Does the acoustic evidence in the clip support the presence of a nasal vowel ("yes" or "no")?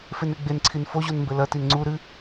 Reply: no